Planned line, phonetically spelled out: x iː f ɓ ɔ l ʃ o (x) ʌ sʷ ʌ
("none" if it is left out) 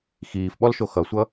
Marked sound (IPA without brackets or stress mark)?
x